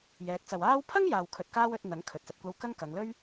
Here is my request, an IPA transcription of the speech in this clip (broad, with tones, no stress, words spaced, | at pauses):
jɛː˨˥k̚t͡sɐ˨waː˥w pʰɐ˥ŋjaː˨w kʰɵ˧t̚kaː˥wɵ˨˥t̚ n̪ɐ˨˥ŋkʰɵ˨t̚ sɐ˨t̚kʷɐ˧w kɐ˥ŋkɐ˨˧ŋ lɵ˥ɥ